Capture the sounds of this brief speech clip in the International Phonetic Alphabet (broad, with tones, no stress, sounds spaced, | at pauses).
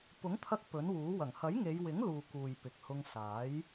p ʊ˨˥ ŋ t̪ʰ ɐ˧ k̚ p ɵ˨˥ n w uː˨˥ w ɐ˨˩ ŋ h ɐ˨˥ j ŋ e˨˧ j w ɪ˨˥ ŋ l uː˨ k uː˨ j p ɪ˨ k̚ h ʊ˧ ŋ s aː˨˥ j